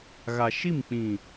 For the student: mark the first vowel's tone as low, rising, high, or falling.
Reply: low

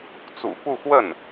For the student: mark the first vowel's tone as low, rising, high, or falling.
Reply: low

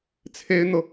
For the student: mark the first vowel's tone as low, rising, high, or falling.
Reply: high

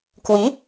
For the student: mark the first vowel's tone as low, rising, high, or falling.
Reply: rising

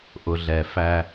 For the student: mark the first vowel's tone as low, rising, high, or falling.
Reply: low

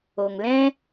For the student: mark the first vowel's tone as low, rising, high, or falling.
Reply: low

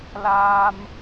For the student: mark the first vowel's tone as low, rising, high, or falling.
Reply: high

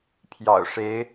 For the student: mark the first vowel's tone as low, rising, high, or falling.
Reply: low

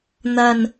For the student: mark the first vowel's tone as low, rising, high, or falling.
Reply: low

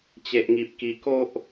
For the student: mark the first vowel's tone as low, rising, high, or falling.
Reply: low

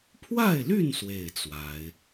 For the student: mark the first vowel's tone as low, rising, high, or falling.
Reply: falling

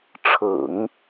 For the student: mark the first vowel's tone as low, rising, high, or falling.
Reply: low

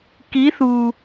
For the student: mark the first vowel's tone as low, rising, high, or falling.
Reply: rising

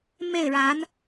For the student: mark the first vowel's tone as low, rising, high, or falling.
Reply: falling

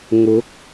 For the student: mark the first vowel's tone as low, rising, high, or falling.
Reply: rising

